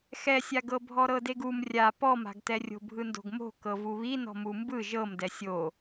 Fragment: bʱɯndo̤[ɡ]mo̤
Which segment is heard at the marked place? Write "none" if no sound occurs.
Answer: ɡ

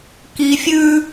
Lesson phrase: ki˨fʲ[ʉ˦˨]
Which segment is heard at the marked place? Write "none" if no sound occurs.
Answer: ʉ˦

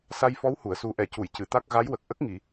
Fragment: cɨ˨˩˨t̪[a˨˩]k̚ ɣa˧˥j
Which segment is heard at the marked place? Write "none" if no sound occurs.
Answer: a˦˥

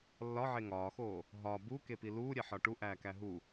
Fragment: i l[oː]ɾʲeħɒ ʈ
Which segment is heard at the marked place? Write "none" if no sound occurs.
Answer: uː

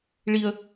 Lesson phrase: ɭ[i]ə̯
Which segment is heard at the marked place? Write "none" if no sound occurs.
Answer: i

